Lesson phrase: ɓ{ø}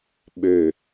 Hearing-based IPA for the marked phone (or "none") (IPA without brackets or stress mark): ø